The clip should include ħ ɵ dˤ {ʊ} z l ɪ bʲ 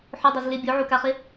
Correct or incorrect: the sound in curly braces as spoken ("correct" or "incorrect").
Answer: incorrect